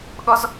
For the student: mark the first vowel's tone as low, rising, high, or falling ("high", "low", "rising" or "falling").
high